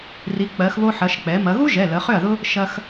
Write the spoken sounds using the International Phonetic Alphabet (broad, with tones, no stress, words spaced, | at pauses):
ri˩˧k͡pɜ˩˧xβo˧ħɐ˩˧ʃ k͡pɛ˩˧ mɐ˩˧ɣu˥ʒɛ˩˧˩ lə˩˧χʏ˥˩ɐ̯ðʊ˥ | ʃɐ˧x